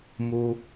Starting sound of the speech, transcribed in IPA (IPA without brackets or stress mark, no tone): m